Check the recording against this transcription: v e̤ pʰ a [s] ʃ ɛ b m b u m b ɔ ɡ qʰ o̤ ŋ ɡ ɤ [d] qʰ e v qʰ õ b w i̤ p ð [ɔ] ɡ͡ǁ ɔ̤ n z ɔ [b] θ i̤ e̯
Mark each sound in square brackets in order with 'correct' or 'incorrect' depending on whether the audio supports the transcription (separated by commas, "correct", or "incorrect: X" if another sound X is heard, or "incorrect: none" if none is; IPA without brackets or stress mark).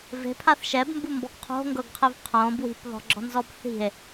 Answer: incorrect: θ, incorrect: ɡ, incorrect: ɔ̤, correct